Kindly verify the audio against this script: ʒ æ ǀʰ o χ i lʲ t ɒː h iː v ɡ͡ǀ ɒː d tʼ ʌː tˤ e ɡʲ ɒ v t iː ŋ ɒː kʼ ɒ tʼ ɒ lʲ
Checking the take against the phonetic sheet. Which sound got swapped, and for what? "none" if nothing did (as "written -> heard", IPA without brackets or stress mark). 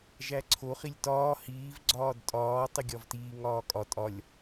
ʌː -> ɒː